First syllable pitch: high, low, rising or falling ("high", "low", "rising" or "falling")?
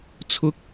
high